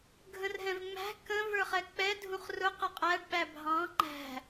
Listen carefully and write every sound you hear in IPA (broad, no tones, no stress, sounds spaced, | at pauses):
ɡʱ ə̃ r ɦ ɛ̃ v ŋ͡m æ̤ k ə̃ v ə˞ χ ɛ k͡p ɛ dʱ ũ χ r ʊ q ə qʼ æ ɖ ɓ æ bʱ ɑ̃ ŋ͡ǃ æ̤